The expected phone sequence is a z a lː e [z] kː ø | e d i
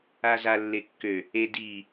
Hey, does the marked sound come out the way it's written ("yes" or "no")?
no